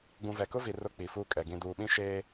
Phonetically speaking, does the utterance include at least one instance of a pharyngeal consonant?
no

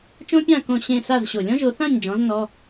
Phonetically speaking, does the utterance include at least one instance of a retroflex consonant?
no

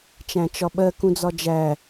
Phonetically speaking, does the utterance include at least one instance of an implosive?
yes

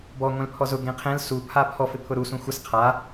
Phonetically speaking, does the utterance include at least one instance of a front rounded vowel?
no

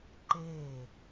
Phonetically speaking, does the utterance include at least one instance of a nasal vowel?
no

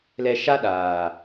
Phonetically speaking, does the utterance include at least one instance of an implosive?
yes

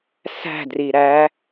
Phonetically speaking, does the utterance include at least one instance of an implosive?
no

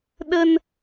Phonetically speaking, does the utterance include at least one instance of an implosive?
yes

